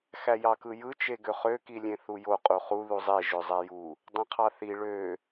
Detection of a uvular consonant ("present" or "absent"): present